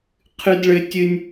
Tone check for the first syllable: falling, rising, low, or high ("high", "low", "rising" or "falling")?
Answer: high